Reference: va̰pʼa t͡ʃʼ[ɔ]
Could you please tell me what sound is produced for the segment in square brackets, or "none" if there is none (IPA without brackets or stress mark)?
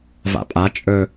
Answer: ɵ